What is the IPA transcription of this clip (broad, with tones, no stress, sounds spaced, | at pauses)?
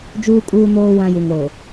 d͡ʒ uː˦ kʼ uː˦ n oː˦ w ã˦ j u˨ ŋ ɾ o˨